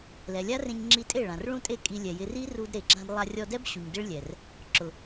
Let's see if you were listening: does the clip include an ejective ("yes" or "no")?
yes